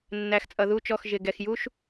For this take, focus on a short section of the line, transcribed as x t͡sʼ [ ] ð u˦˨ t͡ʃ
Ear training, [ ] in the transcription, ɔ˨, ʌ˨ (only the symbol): ʌ˨